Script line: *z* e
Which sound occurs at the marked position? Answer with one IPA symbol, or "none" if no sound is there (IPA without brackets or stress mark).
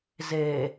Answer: z